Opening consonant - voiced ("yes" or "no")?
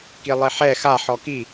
no